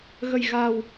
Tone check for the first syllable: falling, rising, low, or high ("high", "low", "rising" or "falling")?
low